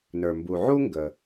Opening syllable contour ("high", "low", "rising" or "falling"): low